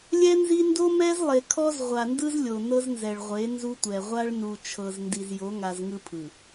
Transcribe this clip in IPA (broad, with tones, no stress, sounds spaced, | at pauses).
lʲ ɛ˦ n z i˦ n d o˦ m ɛ˦ z lˠ e˨ kʰ ɔ˦ z ʁʷ a˨ n d ɯ˦ z lʲ o˨ n ɤ˦ z n z ɛ˨ ɭ ʁʷ e˨˦ n z u˦ tʷ ɛ˨ ʁʷ a˦ ɭ n u˨ t͡ʃʰ ɤ˨ z n d i˨ z j o˨˦ ŋ a˨ z ŋ ɯ˦ pʰ ɯ˨